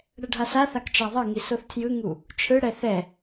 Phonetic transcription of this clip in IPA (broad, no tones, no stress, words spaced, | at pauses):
ɽɛɖʱasaθak t͡ʃaðˤʌŋi soθtʰjɯŋu | t͡ʃʰɯɽɛ θɛ